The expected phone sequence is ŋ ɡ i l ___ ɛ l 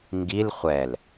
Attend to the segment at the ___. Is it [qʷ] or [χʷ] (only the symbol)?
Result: χʷ